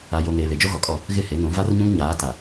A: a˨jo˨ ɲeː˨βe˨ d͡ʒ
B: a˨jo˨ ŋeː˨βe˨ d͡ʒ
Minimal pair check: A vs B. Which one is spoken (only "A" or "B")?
B